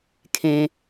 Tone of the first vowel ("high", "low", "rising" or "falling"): low